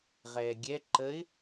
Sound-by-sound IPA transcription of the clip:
ʁɛːɡʲɛ ǃəɪ̯

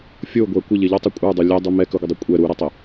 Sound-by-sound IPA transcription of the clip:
fʲoɡʷɛ kʷə ʎɪʎɔtˤɪ kʷʼə˞dˤo lʲɛdˤu mɛ kɵɡʷədˤu kʷʼɛ ɾuɾɪtˤɪ

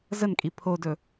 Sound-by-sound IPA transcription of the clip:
zənkʼi pʰodɵ

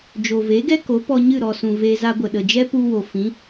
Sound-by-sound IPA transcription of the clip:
d͡ʒo˨ve˨˦ɡɛ˦ ko˨˦ pɔ˧ɲɨ˦˨ɾɔ˨sũ˨ ve˧ za˧ɡʷə˨ ɗə˨d͡ʒɛ˦pu˧wo˨ fĩ˨˦

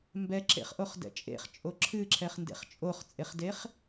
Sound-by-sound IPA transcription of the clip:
mbɛǁḛχʔoχdɛ̰ t͡ʃʼḛχt͡ʃʼo ǁʰɨǁʰɛχndḛχ t͡ʃʼoχt͡sʼeχdeχ

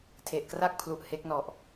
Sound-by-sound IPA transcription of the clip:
tʰe˨˩ʔkra˥˩k̚pʰlu˨˩ʔ he˦˥k̚nɔ˨˩ʔ

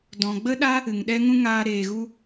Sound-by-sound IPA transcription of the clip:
dɔ̃˨ɡ͡bə˦ɗa˦ | ɨ˨ŋɗɛ˦ŋũ˦ŋaː˧ ɾeː˨ɣu˧

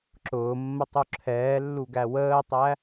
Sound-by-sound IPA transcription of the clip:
ǁʊːmːətˤu ǁʰɛːlːuɡæ wəːtˤæ

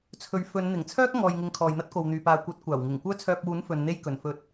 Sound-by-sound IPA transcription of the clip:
t͡sʰɵ˨ɥ fɵ˨˧nn̪ɪ˨˩ŋt͡sʰœː˥k̚ ŋɔː˨jŋɪ˨ŋ kʰɔː˨jn̪ɐ˥t̚ko˨wn̪yː˨ paː˨kʷɐ˨˥t̚kʷaː˨˩wŋɪ˨˩ŋ kʷœː˥t͡sʰœː˧p̚wuː˨˥n fɵ˨˧nn̪e˥jkɵ˨n fɵ˧t̚

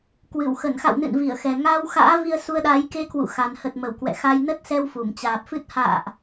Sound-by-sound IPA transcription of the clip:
kwɨ˧˩wxə˧˩nxa̰˧˨wnɨ̰˧˨n vi˧˩ə̯xɛ˨˩ ŋaː˧wxa̰ː˧˥ vi˧ə̯ su˧ə̯ɗaː˨˦j ke˧kwṵ˧˨xa˨˩n hə˨˩t̚mə˧˩w kwɛ̰˧˨xa˧j nə˦˥t̚sɛ˧w fu˧˩mt͡ɕaː˨˩p̚fɨ˦˥t̚ ha̰ː˧˨ʔ

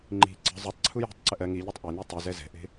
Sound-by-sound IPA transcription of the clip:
ŋ͡ǃi̤ ǀə̤ zˤutˤǀʰu je̤tˤǀə ʔɜ ŋiʎatˤ ʔenɯ tˤʉzɛ zɛ̤ʔe̤

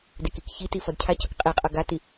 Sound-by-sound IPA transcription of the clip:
dekikçiti fʌdcʰacʌk qʼiqʼʌ ɡati

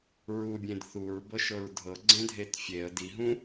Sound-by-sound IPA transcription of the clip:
ɹubʲẽd θuɹbɤʃɤɹ dʱɤɡ͡ǀẽdʱet fʲeə̯ diɦũ

